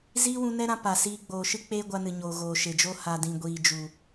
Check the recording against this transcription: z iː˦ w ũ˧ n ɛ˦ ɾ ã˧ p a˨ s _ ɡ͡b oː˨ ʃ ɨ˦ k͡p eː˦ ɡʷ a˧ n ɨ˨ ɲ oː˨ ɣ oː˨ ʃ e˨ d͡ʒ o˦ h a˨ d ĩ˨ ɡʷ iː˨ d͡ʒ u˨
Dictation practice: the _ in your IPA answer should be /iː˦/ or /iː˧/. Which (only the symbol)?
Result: iː˧